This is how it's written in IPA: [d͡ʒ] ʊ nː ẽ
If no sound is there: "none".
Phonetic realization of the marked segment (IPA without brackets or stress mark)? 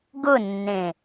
ɡ